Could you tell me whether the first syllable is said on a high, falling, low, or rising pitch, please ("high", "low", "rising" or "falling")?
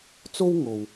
high